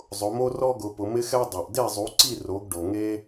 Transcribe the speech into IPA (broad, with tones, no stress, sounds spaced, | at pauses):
zˤ ʊ˩˥ m o˥ r ɔ˥ ɡ ʊ˩˥ p ʊ˩˥ m ɪ˥ x ɛ˥ dˤ o˩ ʔ d e˥˩ zˤ u˩˥ ǀ i˥˩ r o˩˥ ɡ ɖ o˩ ŋ e˥